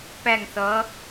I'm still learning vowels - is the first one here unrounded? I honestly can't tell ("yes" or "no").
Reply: yes